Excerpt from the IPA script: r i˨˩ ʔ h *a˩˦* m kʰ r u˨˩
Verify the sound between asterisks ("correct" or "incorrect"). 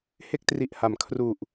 correct